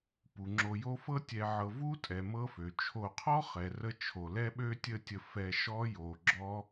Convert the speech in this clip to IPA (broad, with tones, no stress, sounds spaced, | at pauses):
p u˩ ŋ͡ǁ o˨ j o˦ f ɤ˥ tʲ ɛ˨ ʕ ɤ˨ v u˥ tʼ ɛ˩ m ɤ˦ f ø˩ t͡ʃʰ o˨ qʰ ɔ˥ χ ɛ˩ r ə˦ t͡ʃʰ o˩ l ɛ˥ ɓ ø˥ tʲ ə˦ tʲ ə˨ f ɛ˨ ʃ ɔ˦ j o˩ ɡ͡ǁ ɔ˦